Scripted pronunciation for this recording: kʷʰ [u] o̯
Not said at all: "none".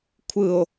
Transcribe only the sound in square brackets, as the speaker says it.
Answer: ɯ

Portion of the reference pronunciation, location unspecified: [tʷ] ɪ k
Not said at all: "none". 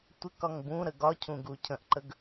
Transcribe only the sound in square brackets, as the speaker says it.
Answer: tʷ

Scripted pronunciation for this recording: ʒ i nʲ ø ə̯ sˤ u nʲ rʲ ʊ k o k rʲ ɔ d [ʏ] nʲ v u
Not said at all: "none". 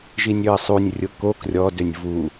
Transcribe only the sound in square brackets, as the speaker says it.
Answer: ʏ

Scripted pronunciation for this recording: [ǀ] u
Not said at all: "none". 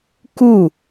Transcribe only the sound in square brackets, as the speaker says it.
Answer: k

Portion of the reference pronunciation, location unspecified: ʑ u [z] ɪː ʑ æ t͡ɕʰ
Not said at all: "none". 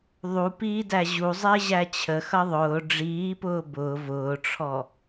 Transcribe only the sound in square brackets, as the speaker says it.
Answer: zˤ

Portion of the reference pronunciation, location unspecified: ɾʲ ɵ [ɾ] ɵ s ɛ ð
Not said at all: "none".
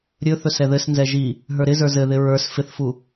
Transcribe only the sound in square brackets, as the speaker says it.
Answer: θ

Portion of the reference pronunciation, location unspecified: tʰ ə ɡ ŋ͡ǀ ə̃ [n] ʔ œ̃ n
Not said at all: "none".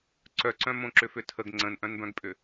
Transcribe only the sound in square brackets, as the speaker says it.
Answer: n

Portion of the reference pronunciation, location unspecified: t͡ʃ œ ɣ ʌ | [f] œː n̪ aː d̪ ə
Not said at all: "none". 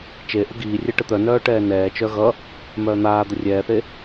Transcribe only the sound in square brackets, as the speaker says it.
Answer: m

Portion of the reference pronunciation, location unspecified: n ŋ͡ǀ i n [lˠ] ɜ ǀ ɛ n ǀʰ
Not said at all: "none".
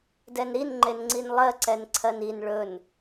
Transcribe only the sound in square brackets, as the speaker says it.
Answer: lˠ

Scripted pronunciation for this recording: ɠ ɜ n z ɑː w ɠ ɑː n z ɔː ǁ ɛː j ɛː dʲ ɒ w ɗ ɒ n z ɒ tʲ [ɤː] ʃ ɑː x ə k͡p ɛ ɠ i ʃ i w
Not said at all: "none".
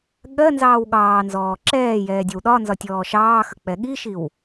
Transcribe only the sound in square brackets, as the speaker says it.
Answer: ɔː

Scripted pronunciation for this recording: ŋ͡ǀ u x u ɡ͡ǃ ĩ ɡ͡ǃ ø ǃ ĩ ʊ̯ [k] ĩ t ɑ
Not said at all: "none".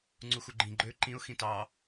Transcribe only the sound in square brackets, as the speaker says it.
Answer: x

